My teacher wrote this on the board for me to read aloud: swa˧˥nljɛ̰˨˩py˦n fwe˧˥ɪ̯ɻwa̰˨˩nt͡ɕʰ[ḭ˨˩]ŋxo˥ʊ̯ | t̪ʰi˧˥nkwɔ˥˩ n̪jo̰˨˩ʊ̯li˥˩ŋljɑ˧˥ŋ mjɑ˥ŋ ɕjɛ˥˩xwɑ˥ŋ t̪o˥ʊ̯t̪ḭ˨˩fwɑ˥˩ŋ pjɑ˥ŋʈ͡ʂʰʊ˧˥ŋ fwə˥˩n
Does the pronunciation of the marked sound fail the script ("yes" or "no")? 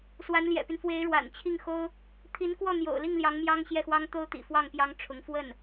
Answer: yes